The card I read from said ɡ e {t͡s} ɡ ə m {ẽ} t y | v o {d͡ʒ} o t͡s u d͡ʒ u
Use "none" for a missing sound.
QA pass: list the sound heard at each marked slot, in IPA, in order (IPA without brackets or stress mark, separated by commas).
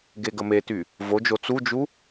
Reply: none, e, d͡ʒ